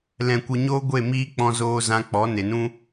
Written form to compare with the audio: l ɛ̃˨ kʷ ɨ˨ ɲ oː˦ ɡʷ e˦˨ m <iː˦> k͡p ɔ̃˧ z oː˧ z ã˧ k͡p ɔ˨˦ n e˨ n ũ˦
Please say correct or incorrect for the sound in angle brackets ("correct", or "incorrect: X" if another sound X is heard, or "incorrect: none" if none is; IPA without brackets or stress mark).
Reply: correct